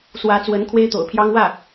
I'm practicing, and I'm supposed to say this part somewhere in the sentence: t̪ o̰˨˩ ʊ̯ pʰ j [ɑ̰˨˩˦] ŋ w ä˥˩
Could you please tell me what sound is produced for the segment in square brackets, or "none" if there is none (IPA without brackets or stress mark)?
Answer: ɑ˥